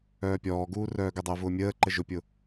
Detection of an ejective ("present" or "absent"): absent